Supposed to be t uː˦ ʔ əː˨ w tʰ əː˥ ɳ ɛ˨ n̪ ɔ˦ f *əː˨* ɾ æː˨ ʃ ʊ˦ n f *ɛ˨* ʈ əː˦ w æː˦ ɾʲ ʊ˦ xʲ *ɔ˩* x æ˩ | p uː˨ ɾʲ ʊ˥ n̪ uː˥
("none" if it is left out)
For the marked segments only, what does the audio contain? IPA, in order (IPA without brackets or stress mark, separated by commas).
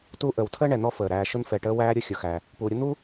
əː˩, ɛ˨, ʊ˩